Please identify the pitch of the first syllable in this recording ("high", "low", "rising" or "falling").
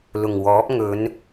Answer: low